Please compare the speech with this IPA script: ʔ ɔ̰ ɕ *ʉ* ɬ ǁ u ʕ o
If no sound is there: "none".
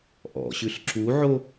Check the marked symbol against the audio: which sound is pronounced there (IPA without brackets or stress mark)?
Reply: ʉ